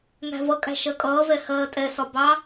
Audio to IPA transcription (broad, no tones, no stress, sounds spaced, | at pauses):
ŋ æ̤ v ʌ kʼ æ̤ ʃ ɜ kʼ ʌː v ɛ h ɜː tʼ ɛ s ɒ b ɑ